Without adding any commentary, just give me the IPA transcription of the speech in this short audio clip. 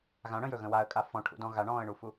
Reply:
ɣ ã ɽ ə̃ j ɵ ɣ ə̃ w a ə̯ kʼ a f ɔ̃ ʈʰ ṵ d ɔ̃ ɣ a ɳ ɔ̃ː ə̯ ɳ u f u

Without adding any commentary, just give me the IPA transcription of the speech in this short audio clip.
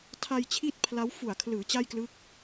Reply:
tʰ a˧ j t͡ɕʰ i˥˩ t̚ pʰ l a˦˥ w f u˨˩ a̯ kʰ l ɯː˩˦ t͡ɕ a˥˩ j k l ɯ˦˥ k̚

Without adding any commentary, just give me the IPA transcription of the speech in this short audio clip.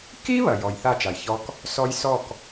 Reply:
k i˦ β ɐ˨ j ɔ˨ j θ a˦˨ t͡ʃ a˨ j ç ɔ˦ k | s ɔ˦ j s ɔ˦˨ k

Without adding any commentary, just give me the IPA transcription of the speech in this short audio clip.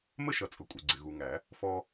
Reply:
m ə˦ ʃ ʌ˨ t͡sʼ ʊ˨ kʷʼ ɪ˨ ɡ͡ǀ ɪ˨ ɣ u˨ ŋ æ˨˩˦ | f ɔ˦

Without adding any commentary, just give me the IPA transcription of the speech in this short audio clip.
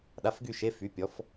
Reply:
ɗ a˧˥˧ f ɡ y˥˧ ʃ e˧˥˧ f y˨˥ pʲ ɔ˨˥ f

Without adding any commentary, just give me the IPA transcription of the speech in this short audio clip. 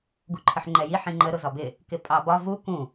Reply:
ɡ u ǃʰ ə ħ ŋ͡ǃ ɛ j i ħ ĩ ŋ͡ǃ ə ɾ ʊ z ɒ b ɪ | k ɪ pʼ ɑ b ɒ v u k ũ

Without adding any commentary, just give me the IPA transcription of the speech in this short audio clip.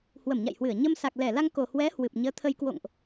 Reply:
h w ə˧˩ m ɲ a̰˧˨ j h w ɨ˧˩ ə̯ ɲ ə˧ m s a˨˩ k̚ l ɛ˧˩ l a˧ ŋ k o˨˩ h w ɛ˨˦ h w ɨ˨˩ p̚ ɲ əː˨˦ t̪ʰ ə˧ j k w o̰˧˨ ŋ ʔ

